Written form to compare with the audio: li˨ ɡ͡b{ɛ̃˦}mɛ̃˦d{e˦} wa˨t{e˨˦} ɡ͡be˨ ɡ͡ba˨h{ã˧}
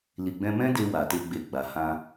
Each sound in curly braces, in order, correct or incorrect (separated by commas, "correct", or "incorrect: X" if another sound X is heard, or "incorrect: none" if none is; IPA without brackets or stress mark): incorrect: ɛ̃˧, incorrect: e˧, incorrect: e˧, correct